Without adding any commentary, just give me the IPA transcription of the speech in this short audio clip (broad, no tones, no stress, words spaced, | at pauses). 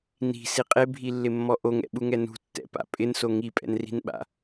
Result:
ni̤si qʼebʱilːɪmːɔ ʔoŋɛ̰ɓuŋɛ nṳtːɛ̰pa̰ pʼɪnso ŋipʼɛ̰nri̤nɓa̰